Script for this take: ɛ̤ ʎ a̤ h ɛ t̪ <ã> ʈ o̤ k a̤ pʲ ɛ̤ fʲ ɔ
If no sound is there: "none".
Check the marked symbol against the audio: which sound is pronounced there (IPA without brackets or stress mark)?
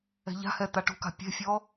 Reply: a